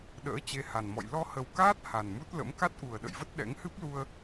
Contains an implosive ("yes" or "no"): yes